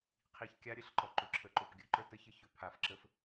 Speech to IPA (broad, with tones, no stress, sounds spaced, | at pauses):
qʰ i˨ ç kʲ a˦ ɾʲ ə˦ ɬ ǃ ɔ˨ ǃ ʏ˨ ǁʰ ə˨ ǃ o˨ p ɡʲ ɵ˦ ǃ ə˞˦ t ə˦ ç ə˦ ç ɵ˨ pʰ a˨ f ǁ ə˦ f